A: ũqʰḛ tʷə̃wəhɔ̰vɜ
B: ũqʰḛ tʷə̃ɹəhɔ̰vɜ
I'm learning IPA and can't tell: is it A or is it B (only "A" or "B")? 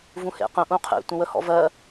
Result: A